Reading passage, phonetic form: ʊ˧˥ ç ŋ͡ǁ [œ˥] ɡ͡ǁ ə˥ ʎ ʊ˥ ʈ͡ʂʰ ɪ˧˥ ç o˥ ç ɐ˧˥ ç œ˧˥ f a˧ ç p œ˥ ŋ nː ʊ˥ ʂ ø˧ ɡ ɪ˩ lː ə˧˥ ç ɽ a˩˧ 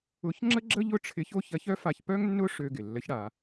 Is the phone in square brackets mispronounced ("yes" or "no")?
yes